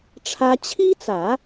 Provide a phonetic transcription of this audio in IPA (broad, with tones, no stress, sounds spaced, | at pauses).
ʈ͡ʂʰ ä˥ t͡ɕʰ i˥ t͡s ä˨˩˦